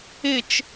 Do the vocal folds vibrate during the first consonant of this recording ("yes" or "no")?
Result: no